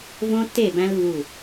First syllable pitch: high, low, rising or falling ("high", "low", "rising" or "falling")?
high